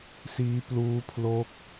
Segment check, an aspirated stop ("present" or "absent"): present